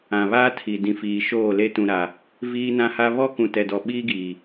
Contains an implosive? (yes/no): yes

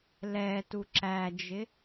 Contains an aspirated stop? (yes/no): no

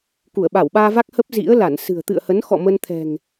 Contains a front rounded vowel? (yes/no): no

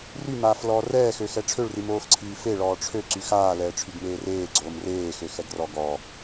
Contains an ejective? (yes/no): no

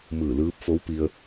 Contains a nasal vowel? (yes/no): no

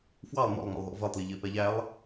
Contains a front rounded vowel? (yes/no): no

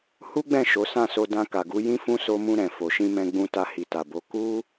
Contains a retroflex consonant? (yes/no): no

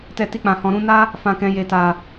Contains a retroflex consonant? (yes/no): no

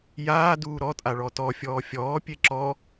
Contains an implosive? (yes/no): no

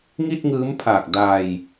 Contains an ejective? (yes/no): no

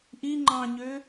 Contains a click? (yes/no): yes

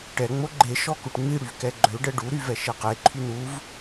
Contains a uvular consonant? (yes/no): yes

